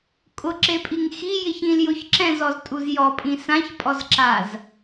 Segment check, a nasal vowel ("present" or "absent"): present